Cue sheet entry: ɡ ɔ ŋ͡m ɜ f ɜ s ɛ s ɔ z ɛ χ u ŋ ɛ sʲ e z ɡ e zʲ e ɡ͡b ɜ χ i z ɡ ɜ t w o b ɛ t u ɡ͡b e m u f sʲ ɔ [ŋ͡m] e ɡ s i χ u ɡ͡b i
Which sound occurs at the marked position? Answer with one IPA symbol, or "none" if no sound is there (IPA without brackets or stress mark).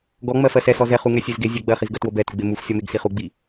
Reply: m